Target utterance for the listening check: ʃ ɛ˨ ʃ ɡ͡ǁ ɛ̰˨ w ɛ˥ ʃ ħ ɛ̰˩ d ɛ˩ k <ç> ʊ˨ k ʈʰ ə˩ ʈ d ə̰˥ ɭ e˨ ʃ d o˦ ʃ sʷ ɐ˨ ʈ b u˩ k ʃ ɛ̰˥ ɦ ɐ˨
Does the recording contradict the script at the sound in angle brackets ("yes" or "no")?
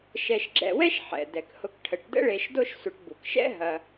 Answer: yes